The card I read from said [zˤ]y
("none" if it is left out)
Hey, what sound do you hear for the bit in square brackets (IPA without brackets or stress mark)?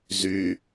z